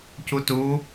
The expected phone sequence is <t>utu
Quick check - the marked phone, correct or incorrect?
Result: incorrect